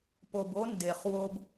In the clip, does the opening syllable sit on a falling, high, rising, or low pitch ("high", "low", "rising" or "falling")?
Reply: low